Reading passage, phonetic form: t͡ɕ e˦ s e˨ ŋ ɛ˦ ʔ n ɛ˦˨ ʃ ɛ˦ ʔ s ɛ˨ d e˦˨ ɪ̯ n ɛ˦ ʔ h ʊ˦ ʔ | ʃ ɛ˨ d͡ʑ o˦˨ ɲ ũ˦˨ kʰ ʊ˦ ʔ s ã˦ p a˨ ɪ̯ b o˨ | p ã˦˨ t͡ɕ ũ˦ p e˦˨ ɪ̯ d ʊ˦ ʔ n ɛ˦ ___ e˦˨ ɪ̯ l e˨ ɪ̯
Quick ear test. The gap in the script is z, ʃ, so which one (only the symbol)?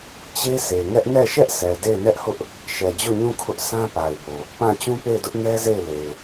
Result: z